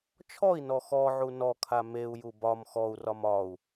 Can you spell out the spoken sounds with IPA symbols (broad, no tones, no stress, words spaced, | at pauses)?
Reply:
t͡ʃʰɔi̯nɔ xɔʕu nɔkʰa meu̯ju bɒm xɔu̯rɒm ɒu̯